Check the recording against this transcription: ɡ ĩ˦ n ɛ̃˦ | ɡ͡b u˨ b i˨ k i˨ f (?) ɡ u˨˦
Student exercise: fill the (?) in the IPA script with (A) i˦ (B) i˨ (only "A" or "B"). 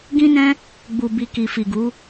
B